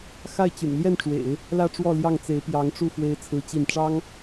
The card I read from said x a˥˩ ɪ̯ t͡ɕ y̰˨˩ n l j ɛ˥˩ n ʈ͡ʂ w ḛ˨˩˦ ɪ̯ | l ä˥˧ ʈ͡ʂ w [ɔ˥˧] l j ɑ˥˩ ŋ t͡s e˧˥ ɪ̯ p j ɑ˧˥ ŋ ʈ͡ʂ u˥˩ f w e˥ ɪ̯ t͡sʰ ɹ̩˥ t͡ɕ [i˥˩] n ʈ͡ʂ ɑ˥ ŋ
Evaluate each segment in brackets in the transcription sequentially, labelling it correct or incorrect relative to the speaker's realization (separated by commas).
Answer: correct, correct